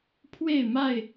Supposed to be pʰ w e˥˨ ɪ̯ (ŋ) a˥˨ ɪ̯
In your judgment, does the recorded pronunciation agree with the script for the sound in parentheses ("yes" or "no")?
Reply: no